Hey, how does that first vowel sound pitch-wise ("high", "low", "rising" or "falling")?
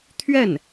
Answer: falling